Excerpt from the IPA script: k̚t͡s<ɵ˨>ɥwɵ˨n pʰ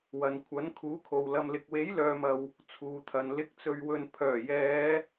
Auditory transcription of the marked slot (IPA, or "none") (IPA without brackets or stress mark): ɵ˨